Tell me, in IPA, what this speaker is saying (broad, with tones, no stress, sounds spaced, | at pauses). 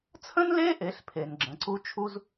t͡sʰ ə̃˥ n l e˥ ʔ e˩˧ ɬ pʰ e˩ n ɡ͡ǁ ə̃˩˧ ǀ u˥ t͡ʃʰ u˥ z